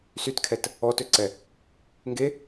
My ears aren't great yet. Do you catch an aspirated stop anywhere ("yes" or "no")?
yes